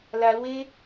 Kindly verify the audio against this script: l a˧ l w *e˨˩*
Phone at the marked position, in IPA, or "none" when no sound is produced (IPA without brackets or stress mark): e˦